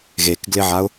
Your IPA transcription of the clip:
ɣ e k ɡ l ɪ ʕ a ʊ̯

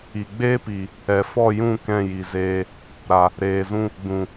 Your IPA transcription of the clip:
i˨ ɡ͡b eː˦ p i˨ | ɛ˨ f ɔ˦˨ j ũ˦˨ k ɛ̃˦˨ j i˨ z eː˧ | ɾ a˨ | ɾ eː˨ z ũ˧ | d ũ˨

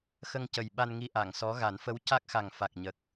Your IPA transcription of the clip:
x ə˧ ŋ c ə˨˩ j ɓ a˧ n ŋ i˧ ʔ a˨˩˨ ŋ s ɔ˧˥ ɣ a˨˩˦ n f ə˧˥ w c a˦˥ k̚ x a˨˩ ŋ f a˨˩ k̚ ɲ ə˨˩ k̚

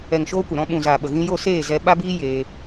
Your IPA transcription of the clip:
ɛ˨ ŋ ʃ oː˧ kʷ ə˨ ɾ ɔ̃˧ ɓ ũ˨ z aː˨ ɓ ə˨ ɣ ĩ˧ j o˦˨ s eː˦˨ z ɛ˧ ɓ a˦ b iː˦ j eː˧

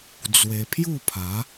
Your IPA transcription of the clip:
d͡z w e˧ pʰ j u˥˧ pʰ a˨˦

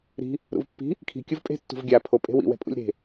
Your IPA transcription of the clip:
ɾ i̤ | ɾ ṵ v pː i̤ | kʰ i̤ kʲ u v pʼ e̤ tː ṳ v ɡʲ a pʰ o pʼ e̤ w ḭ w ɛ̤ pʼ ṵ lʲ ɾ e̤

